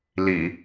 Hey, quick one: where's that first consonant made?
tongue tip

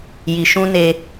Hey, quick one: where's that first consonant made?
palate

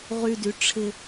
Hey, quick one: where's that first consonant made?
uvula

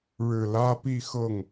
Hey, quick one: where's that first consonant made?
retroflex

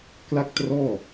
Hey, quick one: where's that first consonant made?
velum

